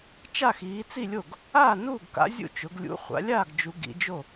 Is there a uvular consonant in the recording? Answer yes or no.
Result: yes